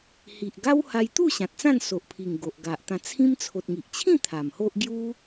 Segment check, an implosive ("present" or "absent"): absent